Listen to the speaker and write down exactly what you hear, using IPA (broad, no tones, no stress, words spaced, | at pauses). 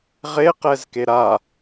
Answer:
ʁeqɛzke ɾa